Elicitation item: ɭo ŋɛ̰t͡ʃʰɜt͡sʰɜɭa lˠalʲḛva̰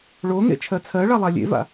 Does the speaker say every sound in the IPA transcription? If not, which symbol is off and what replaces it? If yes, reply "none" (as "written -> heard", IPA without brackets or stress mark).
ɛ̰ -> ḛ